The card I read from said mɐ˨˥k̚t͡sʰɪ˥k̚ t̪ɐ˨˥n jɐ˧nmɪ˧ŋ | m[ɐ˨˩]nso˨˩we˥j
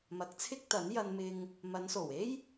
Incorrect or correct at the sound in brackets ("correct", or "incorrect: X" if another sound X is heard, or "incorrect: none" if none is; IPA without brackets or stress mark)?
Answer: incorrect: ɐ˨˧